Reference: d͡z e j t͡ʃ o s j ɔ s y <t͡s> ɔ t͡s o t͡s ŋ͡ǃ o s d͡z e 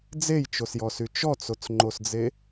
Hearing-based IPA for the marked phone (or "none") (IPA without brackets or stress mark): t͡ʃ